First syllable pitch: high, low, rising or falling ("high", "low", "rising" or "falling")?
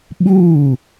falling